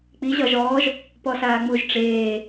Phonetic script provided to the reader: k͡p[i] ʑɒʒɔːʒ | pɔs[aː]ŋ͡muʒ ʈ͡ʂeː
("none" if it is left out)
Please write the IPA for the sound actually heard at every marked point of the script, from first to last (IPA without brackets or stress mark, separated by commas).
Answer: i, aː